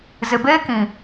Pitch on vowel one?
low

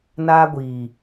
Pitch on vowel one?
high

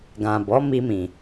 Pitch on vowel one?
low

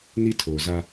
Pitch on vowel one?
high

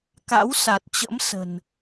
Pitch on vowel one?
rising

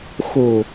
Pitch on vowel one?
low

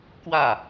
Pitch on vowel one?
falling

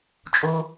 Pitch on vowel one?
high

